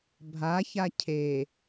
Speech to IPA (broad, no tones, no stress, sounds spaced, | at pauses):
bʱ a ç a cʰ e